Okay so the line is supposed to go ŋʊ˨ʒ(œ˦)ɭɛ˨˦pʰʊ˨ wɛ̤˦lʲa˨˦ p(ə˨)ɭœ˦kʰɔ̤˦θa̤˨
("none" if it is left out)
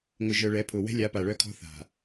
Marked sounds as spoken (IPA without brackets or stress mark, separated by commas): œ˨, a˨